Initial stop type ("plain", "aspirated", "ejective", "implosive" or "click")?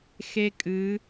ejective